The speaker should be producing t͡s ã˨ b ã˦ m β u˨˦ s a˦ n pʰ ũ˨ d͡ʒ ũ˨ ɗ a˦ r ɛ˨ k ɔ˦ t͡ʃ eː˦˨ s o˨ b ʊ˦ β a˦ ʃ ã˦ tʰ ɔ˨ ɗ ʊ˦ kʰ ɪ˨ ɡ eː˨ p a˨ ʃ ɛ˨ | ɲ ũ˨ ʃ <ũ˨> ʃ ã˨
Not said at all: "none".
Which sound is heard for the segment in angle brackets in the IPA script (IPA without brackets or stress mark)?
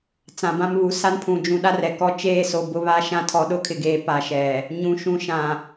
ũ˨